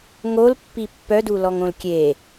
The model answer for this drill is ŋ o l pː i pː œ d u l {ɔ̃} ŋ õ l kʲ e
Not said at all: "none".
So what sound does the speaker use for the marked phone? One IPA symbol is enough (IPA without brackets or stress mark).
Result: ɔ